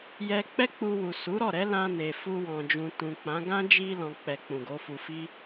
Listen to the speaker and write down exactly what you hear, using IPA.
j ɛ˧ k͡p ɛ˦ k͡p u˧ w u˨ s u˨˦ ɾ ɔ˦˨ ɾ ɛ˨˦ l ã˧ n e˨ f u˧ w ɔ̃˨ d͡ʒ ũ˨ t ũ˨ k͡p ã˨˦ ɡ ã˦ d͡ʒ i˧ l ɔ̃˨ k͡p ɛ˨ k͡p ũ˨ ɡ o˨˦ f u˧ f i˦

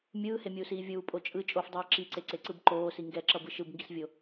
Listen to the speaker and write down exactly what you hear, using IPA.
mʲ ɯː h e mʲ uː s iː vʲ uː pʼ o t͡ʃʼ ɯ t͡ʃʼ o f dˤ iː ǁ i ǀ e ǀ e ǀ ɯ b ǃ oː s i ŋ ɡ ɛ ǁ ʌ b ɯ ʃ ɯ b ŋ ɡ i s vʲ o

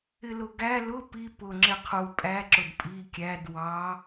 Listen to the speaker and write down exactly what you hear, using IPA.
ɪ l ʊ ɡ æ l ʊ p i p ʊ ŋ͡ǁ ɪ qʰ u pʼ æ ǁ ʊ d pʼ i kʲ æ d w ɑ

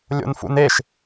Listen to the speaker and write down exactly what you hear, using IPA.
lʲ o̰ n f ṵ n e ʃ

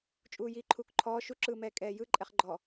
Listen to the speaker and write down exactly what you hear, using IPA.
t͡ʃʼ uː j iː ǃʰ uː k ǃʰ ɔː ʃ u ǁ ɯː m ɛː kʼ ɛː j ɯ ǃʼ ɛ χ ɡ͡ǃ ɔ

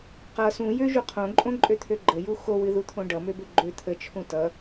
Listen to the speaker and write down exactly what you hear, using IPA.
q ʌ s ũ j ø ʒ u qʰ õ ǃʼ õ ǃʼ ø t̪ʰ ø ɡ͡ǃ ə j u x o w ɨ ð u t̪ʰ õ ɖ ʌ m ø b ø ɡ͡ǃ ø t̪ʰ ə t͡ʃʰ ũ t ʌ

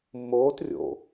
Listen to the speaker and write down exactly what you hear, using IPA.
mː oː t rʲ o̰

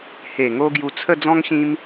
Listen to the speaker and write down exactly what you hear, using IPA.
h e˨˩ ŋ o˧ ɡ j u˧ t͡sʰ ə˥˧ d͡z ɔ̃˦ ŋ ɕ ĩ˦ m

